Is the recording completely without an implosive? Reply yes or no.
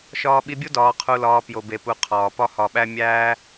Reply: no